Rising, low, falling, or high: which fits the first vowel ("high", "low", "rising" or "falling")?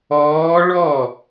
rising